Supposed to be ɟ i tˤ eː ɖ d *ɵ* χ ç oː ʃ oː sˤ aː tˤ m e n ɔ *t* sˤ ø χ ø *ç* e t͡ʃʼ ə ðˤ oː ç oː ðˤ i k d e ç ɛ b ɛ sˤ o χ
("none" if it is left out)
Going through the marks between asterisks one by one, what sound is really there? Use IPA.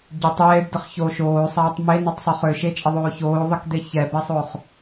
ə, tˤ, ʃ

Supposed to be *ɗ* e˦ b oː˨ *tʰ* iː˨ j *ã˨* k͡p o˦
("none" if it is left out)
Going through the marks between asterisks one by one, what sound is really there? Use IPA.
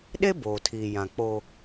ɗ, tʰ, ã˨

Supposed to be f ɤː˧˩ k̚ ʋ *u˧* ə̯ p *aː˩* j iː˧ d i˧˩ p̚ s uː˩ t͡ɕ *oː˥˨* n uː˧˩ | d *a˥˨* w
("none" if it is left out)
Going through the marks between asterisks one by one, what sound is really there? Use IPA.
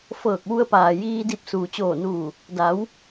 u˧, aː˩, oː˧˩, a˩˧

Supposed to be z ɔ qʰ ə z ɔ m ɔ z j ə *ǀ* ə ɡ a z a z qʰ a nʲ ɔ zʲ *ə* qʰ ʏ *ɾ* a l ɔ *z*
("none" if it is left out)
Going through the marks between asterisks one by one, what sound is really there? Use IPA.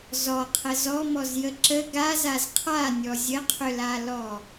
ǁ, ə, l, none

